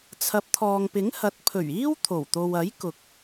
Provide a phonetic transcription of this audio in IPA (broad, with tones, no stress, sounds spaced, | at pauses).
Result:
t͡sʰ ɐ˨˥ p̚ t̪ʰ ɔː˨ ŋ p ɪ˨˥ ŋ h ɐ˨˥ t̚ pʰ ɵ˨˩ ɥ iː˥ w t̪ʰ o˨˩ w t̪ o˨ w ɐ˨˥ j k ʊ˨ k̚